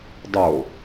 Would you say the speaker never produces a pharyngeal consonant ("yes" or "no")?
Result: yes